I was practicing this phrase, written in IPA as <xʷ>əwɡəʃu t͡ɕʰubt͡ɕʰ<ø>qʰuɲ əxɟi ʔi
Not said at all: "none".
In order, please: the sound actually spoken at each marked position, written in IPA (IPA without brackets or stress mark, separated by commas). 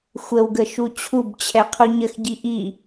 xʷ, ɛ